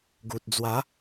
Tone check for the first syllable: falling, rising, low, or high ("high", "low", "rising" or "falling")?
low